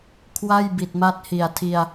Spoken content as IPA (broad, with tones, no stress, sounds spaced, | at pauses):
kʰ w a˥˩ j b i˨˩ t̚ m a˦˥ t̚ h i˨˩ a̯ tʰ i˧ a̯